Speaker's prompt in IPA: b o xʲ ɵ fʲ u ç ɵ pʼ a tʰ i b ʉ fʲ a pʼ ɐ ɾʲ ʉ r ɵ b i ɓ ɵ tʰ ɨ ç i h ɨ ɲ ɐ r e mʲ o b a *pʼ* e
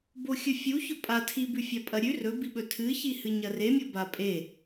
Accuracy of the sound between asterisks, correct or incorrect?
correct